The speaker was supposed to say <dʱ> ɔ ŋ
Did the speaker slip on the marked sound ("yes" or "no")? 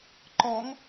yes